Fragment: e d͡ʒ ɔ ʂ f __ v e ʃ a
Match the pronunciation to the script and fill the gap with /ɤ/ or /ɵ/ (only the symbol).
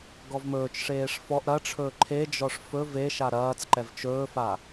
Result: ɵ